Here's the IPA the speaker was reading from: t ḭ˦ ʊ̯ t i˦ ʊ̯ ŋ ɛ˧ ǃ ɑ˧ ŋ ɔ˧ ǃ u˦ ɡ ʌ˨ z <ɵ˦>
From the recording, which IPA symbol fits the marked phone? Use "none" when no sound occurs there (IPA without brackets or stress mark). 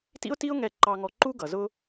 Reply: ʊ˦